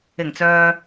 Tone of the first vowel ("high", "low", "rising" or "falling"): low